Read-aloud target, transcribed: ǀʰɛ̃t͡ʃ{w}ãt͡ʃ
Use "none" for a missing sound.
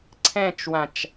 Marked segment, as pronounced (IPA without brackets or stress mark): w